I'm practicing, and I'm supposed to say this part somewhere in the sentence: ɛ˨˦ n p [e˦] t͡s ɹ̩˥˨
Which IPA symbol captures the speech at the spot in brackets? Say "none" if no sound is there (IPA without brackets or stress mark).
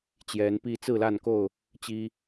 i˦